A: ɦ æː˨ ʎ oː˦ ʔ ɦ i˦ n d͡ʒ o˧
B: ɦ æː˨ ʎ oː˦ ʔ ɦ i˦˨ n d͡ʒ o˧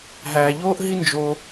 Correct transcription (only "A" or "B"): A